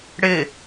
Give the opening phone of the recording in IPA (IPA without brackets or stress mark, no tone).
ɽ